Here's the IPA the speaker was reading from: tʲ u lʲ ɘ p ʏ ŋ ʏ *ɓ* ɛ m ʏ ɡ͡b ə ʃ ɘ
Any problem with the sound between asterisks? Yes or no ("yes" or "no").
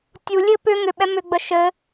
no